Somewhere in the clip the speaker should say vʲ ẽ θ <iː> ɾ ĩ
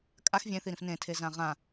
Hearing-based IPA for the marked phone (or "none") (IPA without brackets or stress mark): i